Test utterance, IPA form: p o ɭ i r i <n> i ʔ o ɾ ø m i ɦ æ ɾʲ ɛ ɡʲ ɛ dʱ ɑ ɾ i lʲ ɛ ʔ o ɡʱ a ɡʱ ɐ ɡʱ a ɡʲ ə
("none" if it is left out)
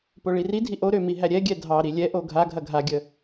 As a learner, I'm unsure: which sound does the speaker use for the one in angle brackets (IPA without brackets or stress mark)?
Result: dʱ